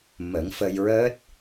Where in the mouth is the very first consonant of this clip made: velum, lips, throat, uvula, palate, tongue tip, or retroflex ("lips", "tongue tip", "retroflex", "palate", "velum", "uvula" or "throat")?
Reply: lips